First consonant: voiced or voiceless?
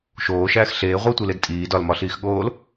voiceless